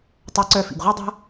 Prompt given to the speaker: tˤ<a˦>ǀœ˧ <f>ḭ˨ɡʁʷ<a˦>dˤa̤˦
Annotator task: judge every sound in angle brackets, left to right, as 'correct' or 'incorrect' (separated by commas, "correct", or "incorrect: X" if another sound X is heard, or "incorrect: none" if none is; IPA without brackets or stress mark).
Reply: incorrect: a˧, correct, correct